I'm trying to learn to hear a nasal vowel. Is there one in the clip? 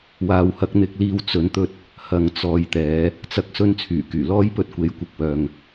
no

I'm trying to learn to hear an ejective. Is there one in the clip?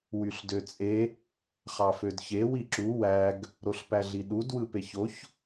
yes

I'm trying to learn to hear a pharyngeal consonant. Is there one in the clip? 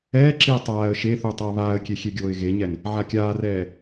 yes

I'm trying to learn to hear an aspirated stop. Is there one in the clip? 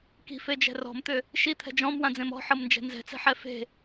yes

